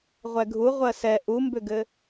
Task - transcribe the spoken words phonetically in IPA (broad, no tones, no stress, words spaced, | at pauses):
ʁʷɛɡʱu ʁʷɜsɛ ʔumbʏɡɘ